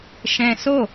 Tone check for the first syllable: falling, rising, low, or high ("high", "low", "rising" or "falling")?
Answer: high